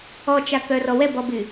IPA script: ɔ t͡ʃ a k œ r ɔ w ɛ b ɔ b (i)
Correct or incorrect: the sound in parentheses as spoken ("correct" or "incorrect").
incorrect